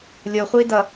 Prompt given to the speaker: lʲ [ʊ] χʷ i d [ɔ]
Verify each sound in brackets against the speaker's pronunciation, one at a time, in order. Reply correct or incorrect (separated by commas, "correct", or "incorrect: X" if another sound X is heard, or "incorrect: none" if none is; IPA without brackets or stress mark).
correct, incorrect: ʌ